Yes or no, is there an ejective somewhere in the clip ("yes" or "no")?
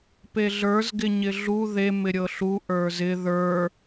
no